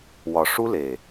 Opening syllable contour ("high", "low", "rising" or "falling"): low